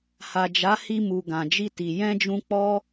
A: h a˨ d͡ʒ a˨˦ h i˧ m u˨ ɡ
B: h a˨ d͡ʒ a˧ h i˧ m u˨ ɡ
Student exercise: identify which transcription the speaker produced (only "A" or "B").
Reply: A